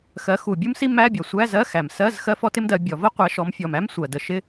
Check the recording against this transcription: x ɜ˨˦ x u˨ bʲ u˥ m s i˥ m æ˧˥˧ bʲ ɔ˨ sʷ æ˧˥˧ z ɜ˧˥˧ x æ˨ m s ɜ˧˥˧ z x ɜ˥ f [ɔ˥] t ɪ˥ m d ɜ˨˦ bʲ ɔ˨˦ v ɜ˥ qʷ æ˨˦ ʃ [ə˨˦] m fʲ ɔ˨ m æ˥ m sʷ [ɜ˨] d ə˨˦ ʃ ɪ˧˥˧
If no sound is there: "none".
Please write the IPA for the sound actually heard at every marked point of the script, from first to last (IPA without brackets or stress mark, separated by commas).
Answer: ɔ˥, ɔ˨˦, ɜ˨